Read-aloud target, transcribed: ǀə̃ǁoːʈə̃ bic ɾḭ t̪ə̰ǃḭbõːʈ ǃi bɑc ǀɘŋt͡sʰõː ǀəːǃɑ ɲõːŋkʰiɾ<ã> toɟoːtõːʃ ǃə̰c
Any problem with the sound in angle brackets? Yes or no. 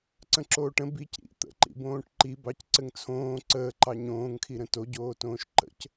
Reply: yes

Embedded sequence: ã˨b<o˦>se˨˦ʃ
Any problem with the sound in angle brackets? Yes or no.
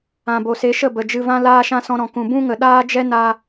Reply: yes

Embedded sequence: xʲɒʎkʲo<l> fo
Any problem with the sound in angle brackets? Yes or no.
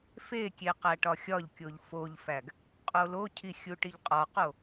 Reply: yes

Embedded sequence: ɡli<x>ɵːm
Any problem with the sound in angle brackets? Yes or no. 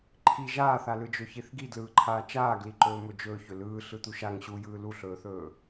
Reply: yes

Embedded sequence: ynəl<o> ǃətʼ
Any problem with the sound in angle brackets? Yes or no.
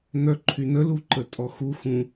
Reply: yes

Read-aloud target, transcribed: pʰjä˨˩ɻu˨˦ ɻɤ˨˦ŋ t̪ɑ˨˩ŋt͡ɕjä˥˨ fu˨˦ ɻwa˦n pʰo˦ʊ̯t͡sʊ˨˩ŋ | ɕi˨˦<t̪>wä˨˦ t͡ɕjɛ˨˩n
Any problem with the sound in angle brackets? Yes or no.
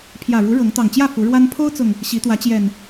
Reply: no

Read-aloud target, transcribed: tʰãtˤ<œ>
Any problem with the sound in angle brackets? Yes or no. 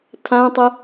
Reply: yes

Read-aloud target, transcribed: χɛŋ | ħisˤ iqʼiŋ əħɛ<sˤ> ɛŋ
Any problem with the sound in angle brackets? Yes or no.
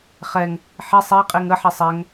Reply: no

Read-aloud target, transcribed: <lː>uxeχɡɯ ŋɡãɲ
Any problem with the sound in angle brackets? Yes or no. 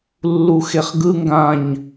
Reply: no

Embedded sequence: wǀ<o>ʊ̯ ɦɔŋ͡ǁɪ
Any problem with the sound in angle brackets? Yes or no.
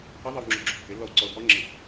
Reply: yes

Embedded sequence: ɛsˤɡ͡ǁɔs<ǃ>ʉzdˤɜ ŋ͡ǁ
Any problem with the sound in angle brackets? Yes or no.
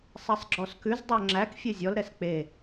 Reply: yes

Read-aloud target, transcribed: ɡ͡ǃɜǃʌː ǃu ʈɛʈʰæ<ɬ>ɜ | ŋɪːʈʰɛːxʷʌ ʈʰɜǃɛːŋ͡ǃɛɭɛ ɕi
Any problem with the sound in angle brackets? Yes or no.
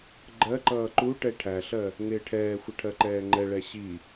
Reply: no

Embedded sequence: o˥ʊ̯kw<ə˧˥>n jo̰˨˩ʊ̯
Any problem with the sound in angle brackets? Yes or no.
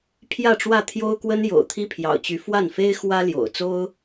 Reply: yes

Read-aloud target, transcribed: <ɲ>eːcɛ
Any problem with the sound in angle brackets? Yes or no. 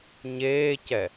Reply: no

